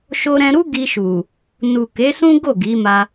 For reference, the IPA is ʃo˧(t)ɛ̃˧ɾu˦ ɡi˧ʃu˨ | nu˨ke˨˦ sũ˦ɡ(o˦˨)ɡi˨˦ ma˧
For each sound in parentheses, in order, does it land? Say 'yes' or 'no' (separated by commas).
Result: no, yes